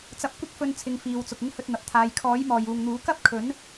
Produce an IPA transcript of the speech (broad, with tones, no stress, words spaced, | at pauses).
t͡sɐ˨˥p̚kʷɪ˥k̚fɵ˧n t͡sʰɪ˧ŋfiː˨˧wt͡sʊ˨k̚ ɪ˧ŋhɵ˨t̚ n̪ɐ˨p̚t̪ʰaː˨˧j kʰɔː˨˥jmɔː˨juː˨ŋn̪uː˨˥ kɐ˥p̚kʰɵ˨˥n